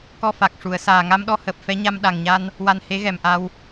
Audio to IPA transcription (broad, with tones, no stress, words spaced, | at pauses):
kɔ˧fa˨˩k̚ ʂu˨˩˨ə̯saː˨˩ ŋa˧mɗɔ˧həː˨˩p̚ fɛ˧˥ɲa˧m ɗa˨˩ŋɲa˧n | wa˧nhe˧˥ɣɛ˨˩mʔa˧w